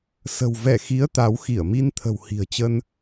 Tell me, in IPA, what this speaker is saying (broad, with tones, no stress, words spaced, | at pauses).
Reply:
sə̤˨˩wvɛ˧˩xi˨˦ə̯ t̪a˨˦w xi˧˩ə̯mi˧n t̪ʰə̤˨˩whi̤˨˩ə̯t͡ɕə˧n